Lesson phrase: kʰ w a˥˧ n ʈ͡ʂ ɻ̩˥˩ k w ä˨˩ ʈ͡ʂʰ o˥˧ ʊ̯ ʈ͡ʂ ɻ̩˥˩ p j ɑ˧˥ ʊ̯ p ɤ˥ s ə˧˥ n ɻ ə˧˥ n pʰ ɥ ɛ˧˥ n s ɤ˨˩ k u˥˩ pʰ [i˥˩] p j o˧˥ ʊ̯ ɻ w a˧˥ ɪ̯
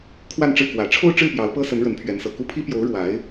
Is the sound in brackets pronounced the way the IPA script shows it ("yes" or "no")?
no